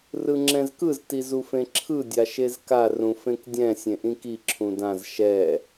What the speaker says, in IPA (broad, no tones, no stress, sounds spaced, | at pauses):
r ɯ ŋ͡ǁ ɛ̃ z k ɯ z t i z u f ẽ ǁʰ ɯ dʲ a ʃ e z k a r ũ f ẽ k dʲ ɛ̃ sʲ ẽ ʔ ĩ k i ǁʰ ũ d ã z ʃ ɛ